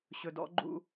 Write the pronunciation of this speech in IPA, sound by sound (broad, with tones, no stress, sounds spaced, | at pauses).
ɕ ɵ˨ d ɔ̰˦ ɡ͡ǃ ṵ˦